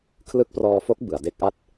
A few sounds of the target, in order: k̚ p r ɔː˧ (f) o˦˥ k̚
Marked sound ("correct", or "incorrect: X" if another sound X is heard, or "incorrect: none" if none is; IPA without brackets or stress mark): correct